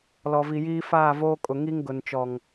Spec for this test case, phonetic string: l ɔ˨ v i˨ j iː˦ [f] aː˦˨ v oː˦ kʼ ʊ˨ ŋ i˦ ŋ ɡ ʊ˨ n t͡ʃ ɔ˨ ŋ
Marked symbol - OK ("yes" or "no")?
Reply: yes